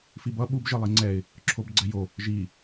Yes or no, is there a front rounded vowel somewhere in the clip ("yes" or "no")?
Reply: no